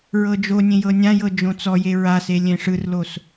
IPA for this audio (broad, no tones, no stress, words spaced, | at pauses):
ɹɤd͡ʒonʲẽ jɤnʲãjɤ d͡ʒõt͡sɔje ɹase lʲẽʂɯrlos